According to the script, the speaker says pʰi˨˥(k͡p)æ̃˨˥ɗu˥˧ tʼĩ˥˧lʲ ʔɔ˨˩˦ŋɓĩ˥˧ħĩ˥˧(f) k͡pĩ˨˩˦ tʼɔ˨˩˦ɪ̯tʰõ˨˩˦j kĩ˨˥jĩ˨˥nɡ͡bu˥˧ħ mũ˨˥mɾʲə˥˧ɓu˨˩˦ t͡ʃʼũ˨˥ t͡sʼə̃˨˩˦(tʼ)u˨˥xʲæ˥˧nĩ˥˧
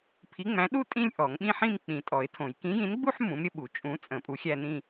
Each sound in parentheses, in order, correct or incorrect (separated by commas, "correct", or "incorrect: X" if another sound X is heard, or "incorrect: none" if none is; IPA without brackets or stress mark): incorrect: ŋ͡m, incorrect: m, incorrect: pʼ